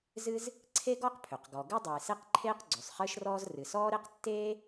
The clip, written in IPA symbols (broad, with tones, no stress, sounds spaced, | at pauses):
z ɨ˥ z | ǀʰ e˥ ɡ ɔ˥ q pʰ ø˩ q ɡ ɔ˩ ɡ ɨ˥ dˤ ɨː˩ s e˥ q ǃʰ eː˥ q ɡ͡ǀ ʉ˩ sˤ χ ɨː˥ ʃ r ɔː˥ z r ɨ˩ s ɔː˥ ɾ e˥ q tː eː˥